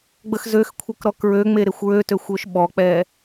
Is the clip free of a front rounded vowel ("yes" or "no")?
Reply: no